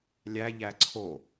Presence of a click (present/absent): present